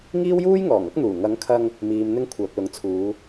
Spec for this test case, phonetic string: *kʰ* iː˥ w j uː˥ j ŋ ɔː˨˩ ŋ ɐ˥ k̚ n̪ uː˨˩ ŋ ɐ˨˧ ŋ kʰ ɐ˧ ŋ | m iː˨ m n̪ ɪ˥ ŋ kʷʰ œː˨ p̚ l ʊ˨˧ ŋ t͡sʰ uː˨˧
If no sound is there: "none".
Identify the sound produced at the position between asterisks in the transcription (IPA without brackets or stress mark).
ŋ